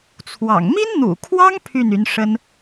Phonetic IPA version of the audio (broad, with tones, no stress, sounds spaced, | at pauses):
t͡sʰ w ɑ̰˨˩ ŋ m i˥ n n̪ ṵ˨˩ kʰ w ɑ˥ ŋ pʰ y˥˩ n y˧˥ n ʂ ə˥ n